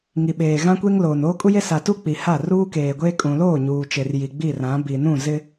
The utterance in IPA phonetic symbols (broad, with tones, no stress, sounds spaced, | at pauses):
ŋ i˨ ɓ eː˨ ɣ ã˦ kʷ e˦ ŋ l oː˨ n oː˦ kʼ u˦ j e˦ s a˨ t u˦ k͡p i˨ h a˦˨ r uː˦ k eː˨ ɡʷ eː˦ kʼ ũ˨ l oː˦˨ ɲ uː˨ t͡ʃ e˨ r j i˨ ɡ͡b i˦˨ r ã˨˦ b iː˨ n ũ˦˨ z ɪ˦